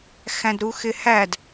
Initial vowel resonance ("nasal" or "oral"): nasal